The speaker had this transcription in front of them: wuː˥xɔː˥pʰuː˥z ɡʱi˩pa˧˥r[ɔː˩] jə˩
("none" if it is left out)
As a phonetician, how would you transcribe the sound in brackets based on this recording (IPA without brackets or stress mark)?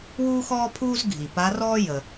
ɔː˥